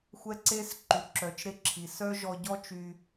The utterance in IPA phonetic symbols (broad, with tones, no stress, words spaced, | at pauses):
xʷɛ˧ ǀe˧s ǃy˨ǁœ˨t͡ʃɾe˧ǁʰi˨ sœ˦ʒɔ˧ ɟɔ˦t͡ʃy˧